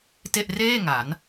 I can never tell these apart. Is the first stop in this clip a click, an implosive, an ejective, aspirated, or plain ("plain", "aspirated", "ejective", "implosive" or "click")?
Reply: plain